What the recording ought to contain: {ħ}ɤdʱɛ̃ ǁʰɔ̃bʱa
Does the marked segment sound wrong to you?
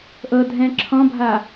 yes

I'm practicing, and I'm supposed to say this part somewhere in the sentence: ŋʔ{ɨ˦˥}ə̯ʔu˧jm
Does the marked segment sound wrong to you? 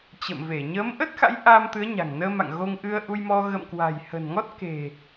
yes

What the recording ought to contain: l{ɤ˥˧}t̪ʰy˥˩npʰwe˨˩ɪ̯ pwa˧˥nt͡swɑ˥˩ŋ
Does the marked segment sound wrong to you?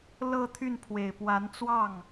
no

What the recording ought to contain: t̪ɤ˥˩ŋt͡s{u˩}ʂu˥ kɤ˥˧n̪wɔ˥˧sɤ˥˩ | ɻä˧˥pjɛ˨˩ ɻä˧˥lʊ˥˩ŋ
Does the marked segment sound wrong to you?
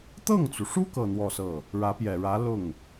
no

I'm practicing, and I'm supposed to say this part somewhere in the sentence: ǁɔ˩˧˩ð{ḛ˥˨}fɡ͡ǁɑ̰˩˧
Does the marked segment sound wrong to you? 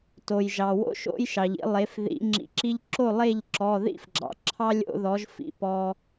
yes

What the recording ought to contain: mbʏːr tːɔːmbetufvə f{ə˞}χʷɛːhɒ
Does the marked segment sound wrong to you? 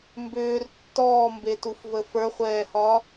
no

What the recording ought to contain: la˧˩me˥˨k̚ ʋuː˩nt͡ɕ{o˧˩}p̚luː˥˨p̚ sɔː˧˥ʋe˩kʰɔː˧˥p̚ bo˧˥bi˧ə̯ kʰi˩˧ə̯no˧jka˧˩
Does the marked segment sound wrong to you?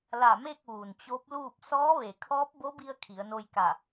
yes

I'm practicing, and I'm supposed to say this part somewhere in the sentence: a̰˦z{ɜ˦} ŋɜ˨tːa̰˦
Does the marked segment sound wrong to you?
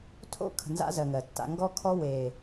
yes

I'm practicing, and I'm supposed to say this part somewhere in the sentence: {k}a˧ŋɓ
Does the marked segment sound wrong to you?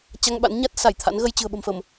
yes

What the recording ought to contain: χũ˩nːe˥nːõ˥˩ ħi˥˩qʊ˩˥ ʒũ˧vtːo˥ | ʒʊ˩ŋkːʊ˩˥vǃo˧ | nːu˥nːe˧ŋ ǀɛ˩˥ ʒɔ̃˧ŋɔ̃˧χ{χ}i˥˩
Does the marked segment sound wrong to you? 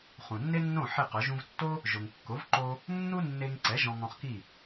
yes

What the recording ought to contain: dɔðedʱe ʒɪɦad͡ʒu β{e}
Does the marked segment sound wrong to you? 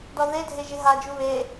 no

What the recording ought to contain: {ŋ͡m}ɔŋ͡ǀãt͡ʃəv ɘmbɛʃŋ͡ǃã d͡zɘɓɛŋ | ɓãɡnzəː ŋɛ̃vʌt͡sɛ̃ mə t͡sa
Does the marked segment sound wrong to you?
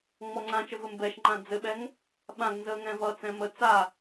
no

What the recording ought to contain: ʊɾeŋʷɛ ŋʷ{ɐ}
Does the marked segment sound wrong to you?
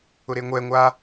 yes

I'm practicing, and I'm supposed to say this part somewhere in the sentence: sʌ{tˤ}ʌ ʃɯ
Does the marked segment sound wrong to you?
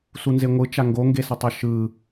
no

